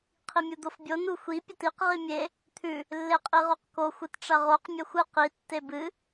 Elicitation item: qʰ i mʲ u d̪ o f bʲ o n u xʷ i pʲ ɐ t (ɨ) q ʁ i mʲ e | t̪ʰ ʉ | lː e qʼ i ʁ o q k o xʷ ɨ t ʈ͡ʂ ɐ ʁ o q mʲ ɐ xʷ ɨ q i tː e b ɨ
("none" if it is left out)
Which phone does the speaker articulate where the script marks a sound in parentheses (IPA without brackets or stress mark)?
i